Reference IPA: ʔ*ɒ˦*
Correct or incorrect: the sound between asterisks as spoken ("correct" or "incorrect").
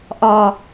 correct